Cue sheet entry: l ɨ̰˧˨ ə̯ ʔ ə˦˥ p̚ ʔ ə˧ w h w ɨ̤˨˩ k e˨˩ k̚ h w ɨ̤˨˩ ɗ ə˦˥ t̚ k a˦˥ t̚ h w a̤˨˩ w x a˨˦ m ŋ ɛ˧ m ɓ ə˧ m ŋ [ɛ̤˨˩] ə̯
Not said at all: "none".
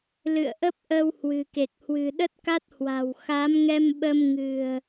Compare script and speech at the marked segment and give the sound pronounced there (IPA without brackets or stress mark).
ɨ̤˨˩